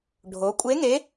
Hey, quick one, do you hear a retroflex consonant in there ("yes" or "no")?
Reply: yes